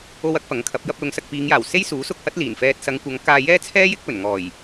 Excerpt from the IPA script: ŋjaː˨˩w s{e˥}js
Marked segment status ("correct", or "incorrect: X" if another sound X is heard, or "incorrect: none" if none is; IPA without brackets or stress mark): correct